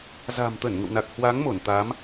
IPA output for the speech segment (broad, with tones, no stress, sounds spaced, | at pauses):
z a̤˨˩ m t̪ ə˧˩ n ŋ ə̰˧˨ w n a˨˩ k̚ h w a˨˦ ŋ m o˧˩ n t̪ a˨˦ m